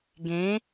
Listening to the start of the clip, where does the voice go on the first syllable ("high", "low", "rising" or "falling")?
rising